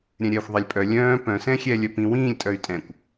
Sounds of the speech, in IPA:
ɾʲɛ̃ɾʲɛːxʷðˤɛlʲpʼœ lʲœ̃ː pœ̃sɛ̃xʲɛː lʲœpĩ wĩːlʲ tʼœy̯tʼɛ̃kʷ

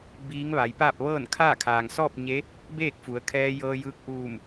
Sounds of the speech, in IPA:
biː˧˥ŋʋa˩˧jpaː˥˨p̚ ʋɤː˥˨nkʰaː˥˨ kʰaː˩ŋsɔː˥˨p̚ɲe˧˥ | beː˥˨k̚fu˩˧ə̯kʰɛː˧jɤː˧ jɯː˧k̚ʔuː˧˩m

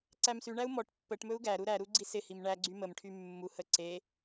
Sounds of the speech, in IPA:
ǀæmsyɳæu̯ mɔʈ pːəʈmɵu̯ ɡæɾu ɾæɾu ɡ͡ǀisɪhim ɳæɡ͡ǀy məmʈʰy mːuhə ǀe

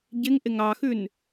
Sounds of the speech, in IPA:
ɟɪŋ ʔɪŋɑxʉn

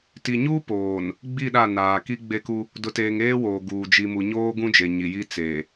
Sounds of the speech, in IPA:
ti˨ɲu˦poː˨n | ɡ͡bi˦˨ɗa˦˨ naː˨ ki˦ ɡ͡be˦ku˦ | dʊ˨teː˨ŋ eː˦woː˨ɡuː˨ d͡ʒi˨ mu˨ ɲoː˦ɡũ˦ d͡ʒe˨ɲi˨ji˦ t͡se˨

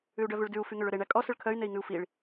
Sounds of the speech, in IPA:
ʉu̯ɖœvʉɭdʉu̯ fyŋøɭɵɾe ɳækʼɔ sɵɭkʰœy̯ nei̯ŋʉu̯fiɭ

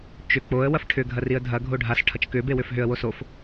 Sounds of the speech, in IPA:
t͡ʃʏ k͡poə̯ wɐfʈʰʏɡʱɐ riə̯dʱɐɡʱo ɖʱasʈʰɐt͡ʃ kʏbe wʏfɦʏə̯wo sof

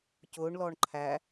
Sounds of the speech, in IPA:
cʊːɳlɔːɳ ǃʰæ

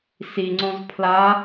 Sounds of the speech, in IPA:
siŋ͡ǀõz pʰla

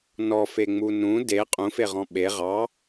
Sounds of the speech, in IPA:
nɔfeŋ͡mu nũ de qʼũfeʁɔ̃ ɓe ʁɑ

